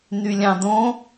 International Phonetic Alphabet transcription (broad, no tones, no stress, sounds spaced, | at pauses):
n y lʲ ɑ̃ d õ